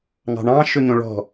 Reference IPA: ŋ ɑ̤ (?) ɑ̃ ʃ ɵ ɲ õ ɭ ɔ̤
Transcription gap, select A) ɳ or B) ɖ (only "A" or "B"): A